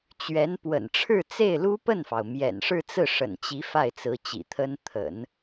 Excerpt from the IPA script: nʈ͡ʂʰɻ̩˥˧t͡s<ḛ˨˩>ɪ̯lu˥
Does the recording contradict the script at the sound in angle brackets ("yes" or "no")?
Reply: yes